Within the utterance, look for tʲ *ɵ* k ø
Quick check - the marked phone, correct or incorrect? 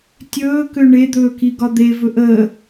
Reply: incorrect